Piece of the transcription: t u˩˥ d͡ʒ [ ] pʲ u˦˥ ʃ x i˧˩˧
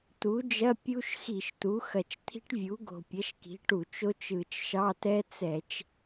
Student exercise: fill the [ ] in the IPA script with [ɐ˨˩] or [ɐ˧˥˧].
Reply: ɐ˧˥˧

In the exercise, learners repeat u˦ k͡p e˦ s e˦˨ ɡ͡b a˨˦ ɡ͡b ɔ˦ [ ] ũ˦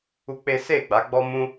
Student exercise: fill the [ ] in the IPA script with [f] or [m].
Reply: m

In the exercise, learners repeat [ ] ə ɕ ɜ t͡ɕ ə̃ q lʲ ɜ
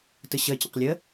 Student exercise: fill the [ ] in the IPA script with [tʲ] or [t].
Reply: t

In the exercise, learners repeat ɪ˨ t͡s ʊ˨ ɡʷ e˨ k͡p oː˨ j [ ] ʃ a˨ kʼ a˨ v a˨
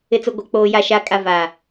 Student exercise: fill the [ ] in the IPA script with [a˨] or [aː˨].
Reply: a˨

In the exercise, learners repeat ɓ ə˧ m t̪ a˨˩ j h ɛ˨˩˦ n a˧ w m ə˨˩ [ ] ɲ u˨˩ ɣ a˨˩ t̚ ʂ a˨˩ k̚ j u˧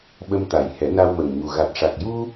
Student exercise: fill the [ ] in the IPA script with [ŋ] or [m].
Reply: ŋ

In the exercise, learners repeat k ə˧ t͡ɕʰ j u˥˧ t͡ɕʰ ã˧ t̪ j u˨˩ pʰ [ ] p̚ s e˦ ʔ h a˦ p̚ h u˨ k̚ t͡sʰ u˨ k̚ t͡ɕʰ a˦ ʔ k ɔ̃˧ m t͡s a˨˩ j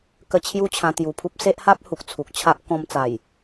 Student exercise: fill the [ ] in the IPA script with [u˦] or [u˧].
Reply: u˦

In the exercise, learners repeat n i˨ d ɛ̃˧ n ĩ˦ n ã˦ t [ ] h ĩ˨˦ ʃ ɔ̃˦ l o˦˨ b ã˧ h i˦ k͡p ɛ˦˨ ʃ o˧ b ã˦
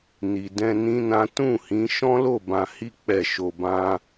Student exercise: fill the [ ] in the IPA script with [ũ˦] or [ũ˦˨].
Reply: ũ˦˨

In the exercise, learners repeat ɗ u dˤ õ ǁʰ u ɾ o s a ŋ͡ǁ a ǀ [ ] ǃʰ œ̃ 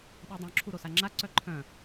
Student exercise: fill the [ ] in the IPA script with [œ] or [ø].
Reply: œ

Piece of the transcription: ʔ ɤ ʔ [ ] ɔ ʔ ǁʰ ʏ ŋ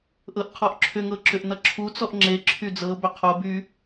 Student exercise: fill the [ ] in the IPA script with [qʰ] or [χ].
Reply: qʰ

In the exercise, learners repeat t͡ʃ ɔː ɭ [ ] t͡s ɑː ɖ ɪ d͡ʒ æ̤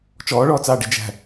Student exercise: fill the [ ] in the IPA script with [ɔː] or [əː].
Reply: ɔː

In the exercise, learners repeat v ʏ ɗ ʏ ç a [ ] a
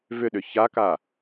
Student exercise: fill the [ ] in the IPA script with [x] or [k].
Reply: k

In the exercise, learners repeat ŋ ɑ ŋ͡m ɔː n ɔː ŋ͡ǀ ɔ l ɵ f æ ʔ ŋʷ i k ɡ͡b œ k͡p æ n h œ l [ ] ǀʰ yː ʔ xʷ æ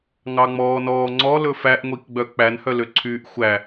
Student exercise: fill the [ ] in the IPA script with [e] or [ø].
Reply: ø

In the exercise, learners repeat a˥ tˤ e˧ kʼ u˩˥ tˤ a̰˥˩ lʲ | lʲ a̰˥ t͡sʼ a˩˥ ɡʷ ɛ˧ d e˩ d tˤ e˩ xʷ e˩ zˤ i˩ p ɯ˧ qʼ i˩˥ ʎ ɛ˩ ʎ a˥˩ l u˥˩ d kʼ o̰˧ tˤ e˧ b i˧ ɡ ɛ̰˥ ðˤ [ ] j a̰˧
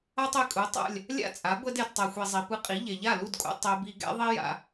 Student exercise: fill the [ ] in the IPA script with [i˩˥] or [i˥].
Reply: i˥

